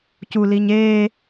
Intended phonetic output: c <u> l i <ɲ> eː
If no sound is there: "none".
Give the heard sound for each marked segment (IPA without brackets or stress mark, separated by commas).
u, ɲ